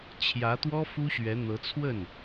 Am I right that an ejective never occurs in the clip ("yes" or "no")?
yes